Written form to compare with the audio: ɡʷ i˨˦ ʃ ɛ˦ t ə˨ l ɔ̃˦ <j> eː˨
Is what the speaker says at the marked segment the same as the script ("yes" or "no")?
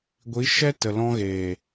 no